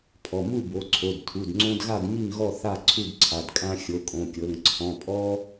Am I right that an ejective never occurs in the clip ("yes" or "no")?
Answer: no